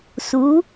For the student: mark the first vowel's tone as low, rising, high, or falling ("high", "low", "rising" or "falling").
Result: rising